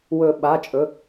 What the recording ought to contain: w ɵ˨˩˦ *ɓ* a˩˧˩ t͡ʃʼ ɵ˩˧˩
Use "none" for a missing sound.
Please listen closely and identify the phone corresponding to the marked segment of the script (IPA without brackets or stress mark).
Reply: ɓ